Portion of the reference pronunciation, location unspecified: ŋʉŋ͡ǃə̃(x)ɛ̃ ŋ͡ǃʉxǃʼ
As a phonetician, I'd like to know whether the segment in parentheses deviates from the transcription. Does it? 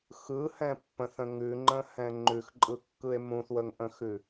yes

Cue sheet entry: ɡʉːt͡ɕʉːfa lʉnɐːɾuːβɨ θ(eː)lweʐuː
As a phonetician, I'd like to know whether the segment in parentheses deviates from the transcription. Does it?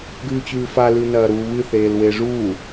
no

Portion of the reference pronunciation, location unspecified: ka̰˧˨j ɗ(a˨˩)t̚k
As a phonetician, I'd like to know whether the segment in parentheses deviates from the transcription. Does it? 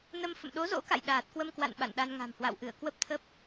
yes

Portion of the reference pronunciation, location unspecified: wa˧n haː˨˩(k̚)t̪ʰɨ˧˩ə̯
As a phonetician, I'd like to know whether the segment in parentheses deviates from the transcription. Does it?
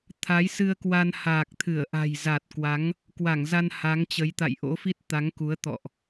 no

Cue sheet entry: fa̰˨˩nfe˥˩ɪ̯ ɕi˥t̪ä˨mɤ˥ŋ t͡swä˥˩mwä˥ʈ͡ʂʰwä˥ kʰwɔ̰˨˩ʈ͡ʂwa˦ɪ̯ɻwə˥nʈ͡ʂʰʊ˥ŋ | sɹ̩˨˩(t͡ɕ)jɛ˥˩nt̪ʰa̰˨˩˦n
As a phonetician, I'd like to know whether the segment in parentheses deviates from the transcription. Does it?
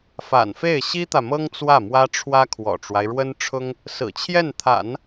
yes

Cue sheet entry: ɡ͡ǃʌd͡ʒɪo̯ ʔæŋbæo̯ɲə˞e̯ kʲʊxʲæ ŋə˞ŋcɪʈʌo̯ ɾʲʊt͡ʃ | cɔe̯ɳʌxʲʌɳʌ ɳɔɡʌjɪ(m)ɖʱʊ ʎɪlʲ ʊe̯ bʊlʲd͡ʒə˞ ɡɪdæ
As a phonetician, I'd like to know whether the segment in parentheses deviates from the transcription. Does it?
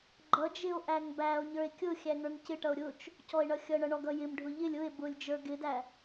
no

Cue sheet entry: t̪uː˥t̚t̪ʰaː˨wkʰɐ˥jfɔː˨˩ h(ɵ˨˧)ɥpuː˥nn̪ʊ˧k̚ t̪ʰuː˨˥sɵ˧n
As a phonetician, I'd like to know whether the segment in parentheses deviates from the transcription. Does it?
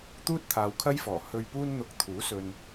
yes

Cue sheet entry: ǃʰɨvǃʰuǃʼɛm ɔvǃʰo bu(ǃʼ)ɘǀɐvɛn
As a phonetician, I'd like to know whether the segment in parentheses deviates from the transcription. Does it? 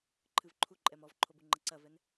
yes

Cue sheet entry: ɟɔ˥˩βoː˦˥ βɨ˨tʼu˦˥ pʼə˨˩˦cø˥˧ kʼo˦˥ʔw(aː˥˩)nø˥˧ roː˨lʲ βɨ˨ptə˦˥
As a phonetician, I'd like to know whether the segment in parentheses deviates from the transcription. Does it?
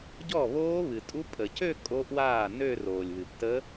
no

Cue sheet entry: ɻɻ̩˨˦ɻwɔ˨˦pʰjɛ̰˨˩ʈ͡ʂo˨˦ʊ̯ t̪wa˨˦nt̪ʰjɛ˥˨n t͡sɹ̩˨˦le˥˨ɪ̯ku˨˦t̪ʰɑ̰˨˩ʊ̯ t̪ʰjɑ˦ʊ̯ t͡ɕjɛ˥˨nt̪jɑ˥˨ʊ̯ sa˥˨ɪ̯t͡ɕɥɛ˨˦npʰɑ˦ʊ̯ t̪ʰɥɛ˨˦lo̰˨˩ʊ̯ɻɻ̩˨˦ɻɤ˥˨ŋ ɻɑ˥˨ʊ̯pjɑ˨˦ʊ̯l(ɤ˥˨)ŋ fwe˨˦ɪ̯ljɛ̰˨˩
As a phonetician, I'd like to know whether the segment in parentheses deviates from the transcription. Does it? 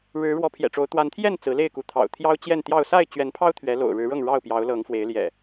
yes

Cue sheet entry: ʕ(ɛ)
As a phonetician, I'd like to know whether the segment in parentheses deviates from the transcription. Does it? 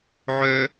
yes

